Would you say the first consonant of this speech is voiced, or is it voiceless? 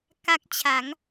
voiceless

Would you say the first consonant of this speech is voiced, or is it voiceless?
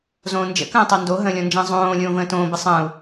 voiced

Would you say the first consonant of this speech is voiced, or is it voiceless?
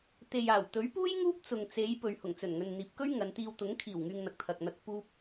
voiceless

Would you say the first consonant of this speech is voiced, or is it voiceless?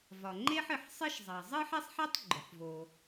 voiced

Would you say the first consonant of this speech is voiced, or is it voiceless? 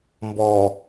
voiced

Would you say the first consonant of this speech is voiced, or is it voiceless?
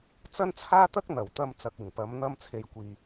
voiceless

